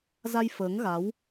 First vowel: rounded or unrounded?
unrounded